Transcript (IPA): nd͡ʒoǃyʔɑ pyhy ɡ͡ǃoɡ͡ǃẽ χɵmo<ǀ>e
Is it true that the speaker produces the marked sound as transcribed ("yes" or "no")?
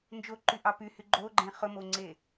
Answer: no